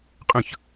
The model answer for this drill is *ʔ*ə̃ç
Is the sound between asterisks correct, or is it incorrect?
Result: incorrect